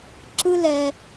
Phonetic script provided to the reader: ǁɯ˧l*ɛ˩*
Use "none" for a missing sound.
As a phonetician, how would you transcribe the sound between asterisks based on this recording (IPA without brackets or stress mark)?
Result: ɛ˩